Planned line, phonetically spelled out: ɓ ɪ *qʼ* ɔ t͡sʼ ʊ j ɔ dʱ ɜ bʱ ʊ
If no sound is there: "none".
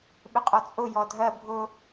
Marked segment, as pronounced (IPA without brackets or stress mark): qʼ